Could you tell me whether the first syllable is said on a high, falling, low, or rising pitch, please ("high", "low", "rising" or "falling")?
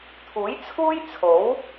rising